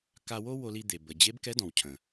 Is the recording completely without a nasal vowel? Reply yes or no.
no